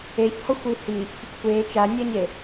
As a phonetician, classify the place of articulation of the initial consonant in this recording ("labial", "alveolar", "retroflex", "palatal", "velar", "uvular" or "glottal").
palatal